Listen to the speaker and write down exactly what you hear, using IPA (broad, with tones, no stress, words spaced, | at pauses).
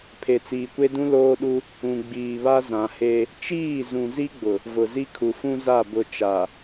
pʰe˨t͡siː˨kʷe˦dũ˦ loː˦ɗu˦ | ũ˨ɡ͡biː˨βa˦ zã˨he˦ | t͡ʃiː˦˨zũ˨ zi˦ɡ͡bʊ˨ | vʊ˨zi˦ kʰu˨fũ˦za˦˨ bʊ˨ t͡ʃa˨